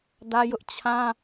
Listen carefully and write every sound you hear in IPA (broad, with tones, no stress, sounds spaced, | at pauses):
d ä˦ j ʊ˦ ʔ t͡ɕʰ ã˦